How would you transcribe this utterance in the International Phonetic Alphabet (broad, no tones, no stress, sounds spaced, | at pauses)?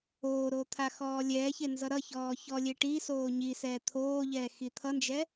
oː ɾ o t̪ʰ a x ɔː lʲ ɛː ç e n z ʌ ɾ ʌ ç ɔː ç ɔ lʲ e ʈ i s oː ɲ i s ɛː t̪ʰ oː ʎ ɛː x i t̪ʰ ʌ n d͡ʒ ɛ